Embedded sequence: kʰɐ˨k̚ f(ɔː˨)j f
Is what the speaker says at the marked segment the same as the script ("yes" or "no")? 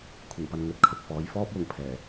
no